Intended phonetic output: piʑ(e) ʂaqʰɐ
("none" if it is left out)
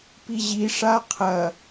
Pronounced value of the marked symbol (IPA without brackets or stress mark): i